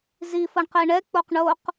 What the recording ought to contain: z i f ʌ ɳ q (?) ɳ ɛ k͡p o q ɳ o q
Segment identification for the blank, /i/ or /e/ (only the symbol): e